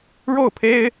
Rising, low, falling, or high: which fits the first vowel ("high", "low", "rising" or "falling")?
falling